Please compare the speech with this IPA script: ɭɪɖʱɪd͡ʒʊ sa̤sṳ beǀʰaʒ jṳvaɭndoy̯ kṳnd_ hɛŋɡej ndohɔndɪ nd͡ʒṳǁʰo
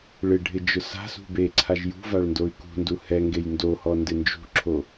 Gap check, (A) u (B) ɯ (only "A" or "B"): A